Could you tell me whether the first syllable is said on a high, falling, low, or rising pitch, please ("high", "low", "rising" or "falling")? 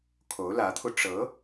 rising